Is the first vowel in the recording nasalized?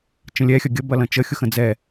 yes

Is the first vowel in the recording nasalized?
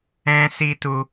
yes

